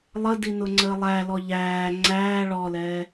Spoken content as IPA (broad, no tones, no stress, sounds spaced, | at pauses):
lˠ ə d i n ʊ ŋ͡ǀ əː lˠ æ l ɔ ʎ æː ŋ͡ǀ æː ɭ ɔ l ɛː